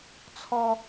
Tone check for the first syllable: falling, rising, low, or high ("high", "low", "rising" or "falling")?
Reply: high